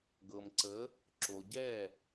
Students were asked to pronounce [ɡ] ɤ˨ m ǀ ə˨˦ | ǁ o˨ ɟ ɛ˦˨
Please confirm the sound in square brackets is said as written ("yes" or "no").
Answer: yes